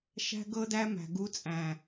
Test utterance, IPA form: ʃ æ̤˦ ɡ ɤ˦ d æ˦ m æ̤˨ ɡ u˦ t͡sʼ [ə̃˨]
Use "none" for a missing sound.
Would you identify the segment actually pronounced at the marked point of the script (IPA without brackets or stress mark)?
æ̃˨